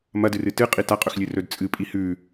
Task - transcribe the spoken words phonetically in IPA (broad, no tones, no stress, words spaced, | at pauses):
mɐdɨrɨ tɨqʼi taqʼɵxlʲɨrɵd t͡sʼɨpʼi hʉ